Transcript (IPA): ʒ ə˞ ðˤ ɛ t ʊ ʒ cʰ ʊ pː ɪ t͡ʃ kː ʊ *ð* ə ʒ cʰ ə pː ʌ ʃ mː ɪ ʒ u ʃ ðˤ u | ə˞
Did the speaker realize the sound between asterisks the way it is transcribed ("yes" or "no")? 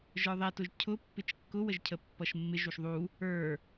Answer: no